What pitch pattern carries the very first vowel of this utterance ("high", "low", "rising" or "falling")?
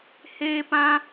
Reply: high